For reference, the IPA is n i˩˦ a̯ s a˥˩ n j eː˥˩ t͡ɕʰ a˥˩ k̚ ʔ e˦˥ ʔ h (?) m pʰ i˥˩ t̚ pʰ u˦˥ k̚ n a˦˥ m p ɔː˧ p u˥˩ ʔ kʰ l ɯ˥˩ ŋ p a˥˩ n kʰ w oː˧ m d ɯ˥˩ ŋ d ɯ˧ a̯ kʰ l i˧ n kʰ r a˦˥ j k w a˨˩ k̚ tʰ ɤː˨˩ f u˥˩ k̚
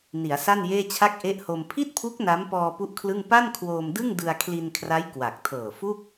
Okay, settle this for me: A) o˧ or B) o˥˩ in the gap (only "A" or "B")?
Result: A